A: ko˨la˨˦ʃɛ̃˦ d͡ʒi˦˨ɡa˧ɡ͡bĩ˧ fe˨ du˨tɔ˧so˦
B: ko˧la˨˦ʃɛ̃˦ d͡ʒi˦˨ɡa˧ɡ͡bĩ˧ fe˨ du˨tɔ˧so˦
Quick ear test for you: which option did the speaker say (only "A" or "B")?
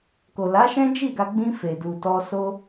A